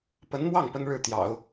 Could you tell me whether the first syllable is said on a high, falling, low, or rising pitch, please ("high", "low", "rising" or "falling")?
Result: rising